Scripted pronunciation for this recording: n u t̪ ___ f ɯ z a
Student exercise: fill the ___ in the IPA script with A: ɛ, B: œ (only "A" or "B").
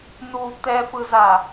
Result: A